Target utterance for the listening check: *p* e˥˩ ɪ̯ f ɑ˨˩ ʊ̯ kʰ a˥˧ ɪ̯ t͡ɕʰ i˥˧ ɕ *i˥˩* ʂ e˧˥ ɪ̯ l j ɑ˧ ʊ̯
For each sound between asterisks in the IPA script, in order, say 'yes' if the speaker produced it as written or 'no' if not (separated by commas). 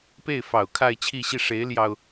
yes, yes